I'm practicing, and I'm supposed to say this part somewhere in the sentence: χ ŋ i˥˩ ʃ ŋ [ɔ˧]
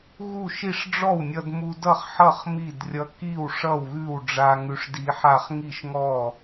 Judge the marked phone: incorrect: ɔ˥˩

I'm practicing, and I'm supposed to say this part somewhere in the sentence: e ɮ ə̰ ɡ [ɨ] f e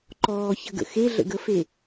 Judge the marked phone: incorrect: ə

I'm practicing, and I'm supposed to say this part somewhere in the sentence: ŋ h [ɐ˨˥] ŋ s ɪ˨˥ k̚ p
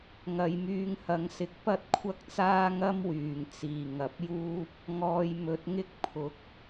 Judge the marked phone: correct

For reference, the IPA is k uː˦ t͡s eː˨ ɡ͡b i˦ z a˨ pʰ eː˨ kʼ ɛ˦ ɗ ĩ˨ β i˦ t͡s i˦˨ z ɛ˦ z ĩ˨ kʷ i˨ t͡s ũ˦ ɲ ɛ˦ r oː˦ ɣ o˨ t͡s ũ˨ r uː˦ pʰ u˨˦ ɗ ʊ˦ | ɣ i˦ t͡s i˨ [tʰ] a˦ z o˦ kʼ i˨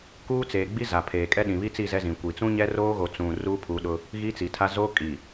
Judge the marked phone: correct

